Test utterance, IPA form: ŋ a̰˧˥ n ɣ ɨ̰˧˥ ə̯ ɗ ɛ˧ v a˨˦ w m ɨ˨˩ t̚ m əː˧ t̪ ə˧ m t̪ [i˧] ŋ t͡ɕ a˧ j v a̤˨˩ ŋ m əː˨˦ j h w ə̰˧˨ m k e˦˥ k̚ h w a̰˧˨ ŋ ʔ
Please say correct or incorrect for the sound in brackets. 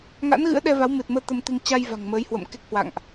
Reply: correct